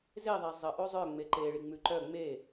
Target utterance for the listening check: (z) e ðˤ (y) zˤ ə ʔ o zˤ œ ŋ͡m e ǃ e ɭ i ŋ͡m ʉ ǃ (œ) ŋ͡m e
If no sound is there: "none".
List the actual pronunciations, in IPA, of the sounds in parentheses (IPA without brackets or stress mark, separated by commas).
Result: z, e, œ